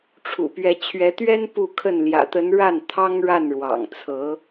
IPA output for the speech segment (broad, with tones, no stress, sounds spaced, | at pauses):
ʈ͡ʂʰ ṵ˨˩ p ɥ ɛ˧˥ t͡ɕʰ ɥ ɛ˧˥ t̪ ɥ ɛ˥ n p u˥˧ kʰ ə˥˩ n l j ä̰˨˩ t̪ ə˧˥ n ɻ a˥˩ n t̪ʰ ɑ˥ ŋ ɻ a˥˩ n ɻ w ɑ̰˨˩ ŋ t͡sʰ ɤ˧˥